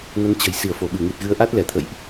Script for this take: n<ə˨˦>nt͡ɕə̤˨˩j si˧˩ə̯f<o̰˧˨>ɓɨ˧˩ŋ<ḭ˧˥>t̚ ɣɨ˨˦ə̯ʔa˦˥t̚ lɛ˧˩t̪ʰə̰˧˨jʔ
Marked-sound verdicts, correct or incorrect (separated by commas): correct, incorrect, incorrect